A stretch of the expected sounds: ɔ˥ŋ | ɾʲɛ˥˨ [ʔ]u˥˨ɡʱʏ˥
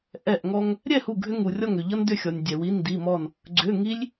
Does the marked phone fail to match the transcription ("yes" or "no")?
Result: yes